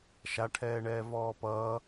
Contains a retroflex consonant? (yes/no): yes